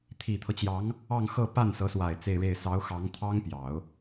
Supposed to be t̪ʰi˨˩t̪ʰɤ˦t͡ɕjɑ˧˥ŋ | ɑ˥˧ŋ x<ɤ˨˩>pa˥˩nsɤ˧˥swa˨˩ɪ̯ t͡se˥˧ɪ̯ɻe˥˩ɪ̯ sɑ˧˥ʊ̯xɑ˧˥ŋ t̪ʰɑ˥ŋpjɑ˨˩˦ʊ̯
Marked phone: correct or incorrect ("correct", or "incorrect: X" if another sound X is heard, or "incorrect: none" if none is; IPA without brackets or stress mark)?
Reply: incorrect: ɤ˥˧